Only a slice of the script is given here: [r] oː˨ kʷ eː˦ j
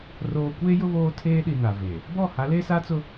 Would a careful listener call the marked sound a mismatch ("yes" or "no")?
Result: no